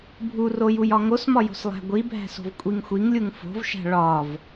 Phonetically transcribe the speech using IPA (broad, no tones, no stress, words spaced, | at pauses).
bʱurojuj ɒŋosmɒjo̤s lˠæ̤ɡʷibʱæ̤so̤v kʷʼiŋxʷiŋlʲuŋ fo̤vʃæ̤ ɭɒv